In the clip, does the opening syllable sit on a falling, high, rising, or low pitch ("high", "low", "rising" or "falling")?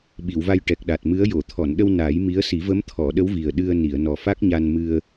low